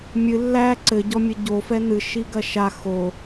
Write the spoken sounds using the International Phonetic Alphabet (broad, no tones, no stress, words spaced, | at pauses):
mʲɨ lːæ ǀɘɟɔmʲɘ ɟofɛ n̪ɨʃiɡɐ ʃa xo